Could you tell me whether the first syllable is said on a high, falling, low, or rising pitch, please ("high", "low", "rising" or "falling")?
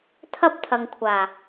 high